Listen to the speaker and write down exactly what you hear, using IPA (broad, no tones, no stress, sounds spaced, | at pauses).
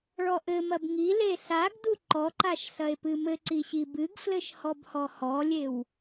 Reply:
ɭ ɔ ʔ ɘ m ɐ b ŋ i l e ɬ a ɡ d u ǃ ɔ ǃ a ʃ ɬ ɐ e̯ p ɨ m ɘ ǀ i ɕ i b ɨ ɡ f l ɘ ʃ h ɔ b h ɔ h ɔ lʲ e w